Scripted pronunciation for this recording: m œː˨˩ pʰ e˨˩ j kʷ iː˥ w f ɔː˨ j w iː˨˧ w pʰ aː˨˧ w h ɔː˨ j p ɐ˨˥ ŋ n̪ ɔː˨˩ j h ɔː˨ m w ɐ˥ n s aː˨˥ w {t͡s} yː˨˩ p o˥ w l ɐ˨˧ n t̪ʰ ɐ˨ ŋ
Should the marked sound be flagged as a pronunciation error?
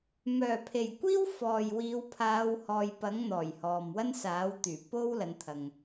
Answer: yes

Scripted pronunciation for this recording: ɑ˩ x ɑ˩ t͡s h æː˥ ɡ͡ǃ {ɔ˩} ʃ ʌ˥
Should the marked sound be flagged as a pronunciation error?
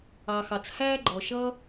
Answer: no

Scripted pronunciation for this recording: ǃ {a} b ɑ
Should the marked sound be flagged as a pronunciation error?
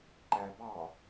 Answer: yes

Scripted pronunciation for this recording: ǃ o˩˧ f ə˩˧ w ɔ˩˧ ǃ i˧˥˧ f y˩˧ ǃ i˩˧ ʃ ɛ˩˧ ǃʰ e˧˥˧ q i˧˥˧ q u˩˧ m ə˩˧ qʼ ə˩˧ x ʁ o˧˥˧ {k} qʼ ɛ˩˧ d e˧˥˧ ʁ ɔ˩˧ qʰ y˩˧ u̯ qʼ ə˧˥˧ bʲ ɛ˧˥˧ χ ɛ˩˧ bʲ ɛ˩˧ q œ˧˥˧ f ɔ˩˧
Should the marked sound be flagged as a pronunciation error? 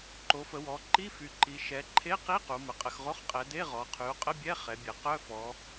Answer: yes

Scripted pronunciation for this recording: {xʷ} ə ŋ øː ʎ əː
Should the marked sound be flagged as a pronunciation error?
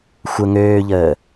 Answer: no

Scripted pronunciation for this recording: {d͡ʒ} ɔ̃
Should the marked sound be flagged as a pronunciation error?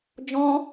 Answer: no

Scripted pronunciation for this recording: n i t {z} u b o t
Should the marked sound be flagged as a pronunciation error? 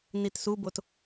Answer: yes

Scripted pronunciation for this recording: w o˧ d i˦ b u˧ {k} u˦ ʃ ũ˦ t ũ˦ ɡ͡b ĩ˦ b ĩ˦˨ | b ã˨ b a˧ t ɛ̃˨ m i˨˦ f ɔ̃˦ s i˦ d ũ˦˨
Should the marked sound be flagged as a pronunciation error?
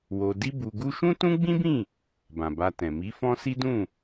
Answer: yes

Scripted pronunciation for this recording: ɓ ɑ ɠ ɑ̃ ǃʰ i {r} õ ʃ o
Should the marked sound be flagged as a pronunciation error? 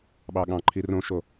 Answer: no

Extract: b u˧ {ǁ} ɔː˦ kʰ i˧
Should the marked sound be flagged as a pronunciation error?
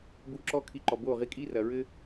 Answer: no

